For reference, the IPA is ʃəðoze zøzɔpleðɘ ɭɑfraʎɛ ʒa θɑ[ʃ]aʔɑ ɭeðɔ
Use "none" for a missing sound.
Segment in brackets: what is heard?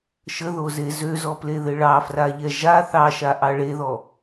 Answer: ʃ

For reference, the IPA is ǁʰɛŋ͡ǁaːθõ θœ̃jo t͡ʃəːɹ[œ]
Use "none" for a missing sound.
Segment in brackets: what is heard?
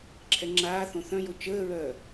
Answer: œː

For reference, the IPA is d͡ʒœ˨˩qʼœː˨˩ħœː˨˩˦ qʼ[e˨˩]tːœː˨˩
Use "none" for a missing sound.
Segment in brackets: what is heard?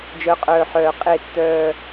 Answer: e˨˩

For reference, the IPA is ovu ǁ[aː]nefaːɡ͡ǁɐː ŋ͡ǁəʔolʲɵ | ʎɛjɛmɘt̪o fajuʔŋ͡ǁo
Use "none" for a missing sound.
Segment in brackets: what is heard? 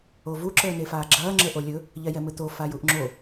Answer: əː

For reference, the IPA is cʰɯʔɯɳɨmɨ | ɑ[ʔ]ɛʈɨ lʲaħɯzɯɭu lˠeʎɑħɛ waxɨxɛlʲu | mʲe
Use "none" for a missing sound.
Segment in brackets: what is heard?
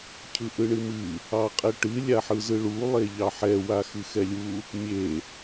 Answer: qʼ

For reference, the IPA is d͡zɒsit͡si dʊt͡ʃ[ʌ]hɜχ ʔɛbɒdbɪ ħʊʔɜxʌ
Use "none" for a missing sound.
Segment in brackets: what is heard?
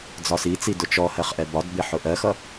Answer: ɔ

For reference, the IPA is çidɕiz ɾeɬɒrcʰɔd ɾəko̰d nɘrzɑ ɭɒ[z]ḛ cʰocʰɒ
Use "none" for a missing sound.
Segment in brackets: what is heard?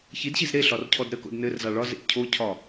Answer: z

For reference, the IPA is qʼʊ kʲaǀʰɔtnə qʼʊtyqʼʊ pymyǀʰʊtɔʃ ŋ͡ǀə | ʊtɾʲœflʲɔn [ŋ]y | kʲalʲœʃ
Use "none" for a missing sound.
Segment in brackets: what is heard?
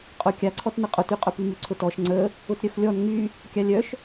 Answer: ŋ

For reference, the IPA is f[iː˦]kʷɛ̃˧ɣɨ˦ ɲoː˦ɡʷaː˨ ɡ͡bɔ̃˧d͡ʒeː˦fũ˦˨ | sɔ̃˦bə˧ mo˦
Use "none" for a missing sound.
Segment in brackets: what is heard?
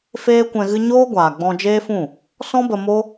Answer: eː˦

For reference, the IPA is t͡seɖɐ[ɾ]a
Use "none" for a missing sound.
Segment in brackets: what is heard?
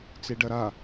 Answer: ɾ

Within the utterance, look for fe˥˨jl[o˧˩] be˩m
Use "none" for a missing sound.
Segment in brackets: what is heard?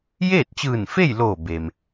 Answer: oː˧˩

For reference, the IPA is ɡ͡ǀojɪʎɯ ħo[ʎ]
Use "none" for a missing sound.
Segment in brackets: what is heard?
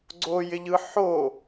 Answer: none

